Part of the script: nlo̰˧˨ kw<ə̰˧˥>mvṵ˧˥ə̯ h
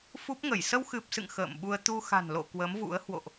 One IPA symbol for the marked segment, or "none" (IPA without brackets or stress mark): ə˨˦